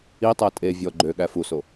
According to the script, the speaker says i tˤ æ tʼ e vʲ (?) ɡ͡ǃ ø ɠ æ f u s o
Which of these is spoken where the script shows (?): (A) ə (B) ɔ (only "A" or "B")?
B